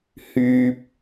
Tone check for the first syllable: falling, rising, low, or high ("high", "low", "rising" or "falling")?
high